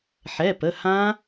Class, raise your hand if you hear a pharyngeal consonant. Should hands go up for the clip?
yes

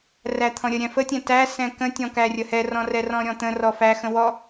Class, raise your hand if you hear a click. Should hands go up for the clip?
no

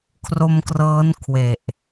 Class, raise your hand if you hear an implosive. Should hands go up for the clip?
no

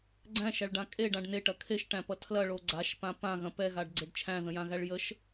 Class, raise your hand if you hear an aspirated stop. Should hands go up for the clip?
yes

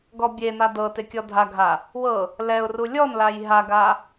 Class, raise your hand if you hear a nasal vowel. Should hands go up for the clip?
no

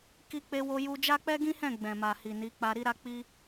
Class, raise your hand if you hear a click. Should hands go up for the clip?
no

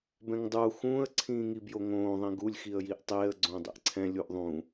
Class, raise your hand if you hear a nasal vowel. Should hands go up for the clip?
yes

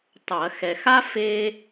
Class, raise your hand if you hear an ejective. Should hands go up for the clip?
no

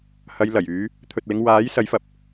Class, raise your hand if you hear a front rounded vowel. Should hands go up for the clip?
yes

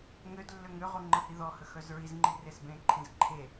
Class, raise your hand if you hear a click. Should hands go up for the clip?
yes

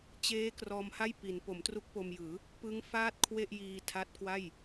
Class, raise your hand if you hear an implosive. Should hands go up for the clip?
no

